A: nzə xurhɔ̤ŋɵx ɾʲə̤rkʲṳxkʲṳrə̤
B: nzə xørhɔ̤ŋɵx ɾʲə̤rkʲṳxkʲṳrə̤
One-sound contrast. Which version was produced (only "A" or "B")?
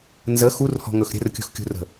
A